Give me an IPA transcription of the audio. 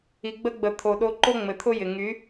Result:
i˨ɡ͡bə˧ɡ͡bə˨ t̪ʰo˨ ɗo˧ǃo˦ ŋ͡mɘ˨t̪ʰʊ˦jɪ˨ ŋy˨˦

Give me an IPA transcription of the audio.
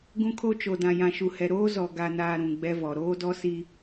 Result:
ɡũ˦kʰo˦t͡ʃo˨ dã˨jã˨ʃu˨hɛ˨ ɾoː˦zɔ˨ɡa˨naː˨ ɾũ˨ɡ͡bɛ˦vɔ˨ ɾoː˦dɔ˦si˦

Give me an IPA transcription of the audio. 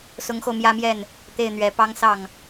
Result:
sʊ˧˥ŋxo˧ʊ̯mjä˥mjɛ˥˩n | t̪e˥˩ɪ̯n̪ɥɛ˧˥ pɑ˥ŋ sɑ˥˩ŋ

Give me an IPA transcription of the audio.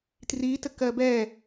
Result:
tritəkɜ bɛ

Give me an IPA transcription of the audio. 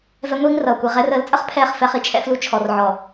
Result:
vɛ˦ŋʷiː˦ŋrʌː˨kʷi˨ ʁɛ˦r əː˨˦lt͡sʼə˦χpʰɛː˦˨χ fɛ˦χi˦t͡ʃʰɛ̰˦flu˦ t͡ʃʰɔ˨rʕɔ˨

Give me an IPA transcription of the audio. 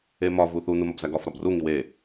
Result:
emɒ vuθu numɒbzæɡɒf ɾɒbru ŋiwe

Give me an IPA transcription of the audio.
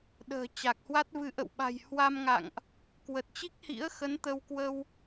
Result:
ɗə̤ː˨˩t͡ɕa˨˩k̚hwa˦˥t̚vɨ˧ ʔə̰˧˨wɓa̤˨˩j hwa˧mŋa̰˧˨ŋʔ | kwə˨˩t̚t͡ɕi˦˥k̚hḭ˧˥ə̯xə˨˦n t̪ə˧wkwə˧w

